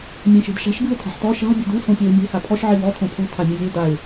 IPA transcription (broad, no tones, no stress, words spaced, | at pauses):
mʲẽʃe̤dʃa̤ʃ ɡɨʊ̯tʰa̤ħtɔ ʃa̤ bʲe̤du sõpʲeʊ̯mʲe̤ hapʰɔʃ ʕiwɔ tʰõpʰu tʰamʲɘvʲo daɪ̯